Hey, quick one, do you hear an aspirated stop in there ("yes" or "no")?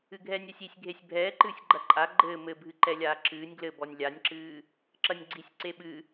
no